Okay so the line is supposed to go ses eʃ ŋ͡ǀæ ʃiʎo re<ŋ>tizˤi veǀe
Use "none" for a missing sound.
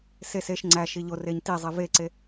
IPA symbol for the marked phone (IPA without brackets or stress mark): ɲ